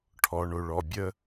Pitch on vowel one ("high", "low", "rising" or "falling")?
low